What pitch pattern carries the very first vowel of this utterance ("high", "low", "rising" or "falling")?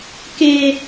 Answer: low